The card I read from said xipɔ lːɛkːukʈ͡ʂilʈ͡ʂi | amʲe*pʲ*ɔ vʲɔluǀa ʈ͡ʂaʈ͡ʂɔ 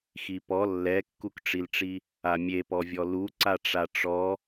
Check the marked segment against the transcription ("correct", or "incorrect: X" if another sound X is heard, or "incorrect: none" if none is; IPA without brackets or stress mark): incorrect: p